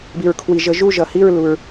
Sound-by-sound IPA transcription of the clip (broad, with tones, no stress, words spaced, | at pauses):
bi˩ɹkʰwi˩ʒə˨˩˦ ʒu˦˨ʒʌ˩hi˦˨ɹ lu˩ɹ